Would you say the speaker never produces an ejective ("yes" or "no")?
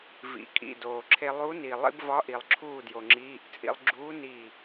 no